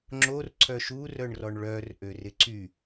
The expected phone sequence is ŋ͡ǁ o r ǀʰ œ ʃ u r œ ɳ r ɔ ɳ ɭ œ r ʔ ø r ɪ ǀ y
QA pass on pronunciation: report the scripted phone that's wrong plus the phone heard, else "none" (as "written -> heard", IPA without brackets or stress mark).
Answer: none